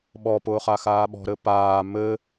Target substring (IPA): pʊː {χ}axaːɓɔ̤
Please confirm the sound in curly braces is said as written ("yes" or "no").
yes